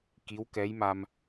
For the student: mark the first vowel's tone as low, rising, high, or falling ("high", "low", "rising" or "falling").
rising